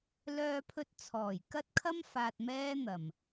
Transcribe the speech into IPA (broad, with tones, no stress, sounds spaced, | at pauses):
l œː˧ pʰ ɵ˧ t̚ t͡sʰ ɔː˨˩ j k ɐ˥ t̚ kʰ ɐ˥ m f aː˧ t̚ m ɛː˥ n̪ ɐ˨˩ m